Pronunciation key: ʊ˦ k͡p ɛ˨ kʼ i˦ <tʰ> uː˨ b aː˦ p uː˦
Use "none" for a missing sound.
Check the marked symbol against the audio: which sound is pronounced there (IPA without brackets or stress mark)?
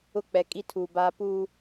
tʰ